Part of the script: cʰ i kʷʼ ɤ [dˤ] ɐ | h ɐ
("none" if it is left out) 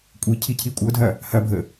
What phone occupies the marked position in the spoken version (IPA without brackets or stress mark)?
dʱ